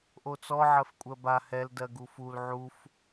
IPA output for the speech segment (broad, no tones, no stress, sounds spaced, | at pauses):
ʔ o t͡s ɔ ʕ ɜ f kʷʼ ɜ b a h ɛ l d ɜ ɡ u f u l ʕ u f